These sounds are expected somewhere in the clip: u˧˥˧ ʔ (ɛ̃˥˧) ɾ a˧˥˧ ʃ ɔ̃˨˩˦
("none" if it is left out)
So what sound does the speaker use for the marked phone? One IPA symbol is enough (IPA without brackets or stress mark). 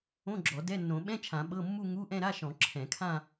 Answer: ɛ̃˥˧